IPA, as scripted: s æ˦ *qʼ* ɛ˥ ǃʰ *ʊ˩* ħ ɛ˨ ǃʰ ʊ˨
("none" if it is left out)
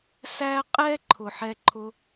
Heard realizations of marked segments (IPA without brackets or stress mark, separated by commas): qʼ, ʊ˩